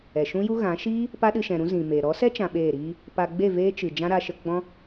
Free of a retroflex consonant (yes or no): yes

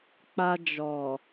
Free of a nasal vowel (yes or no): yes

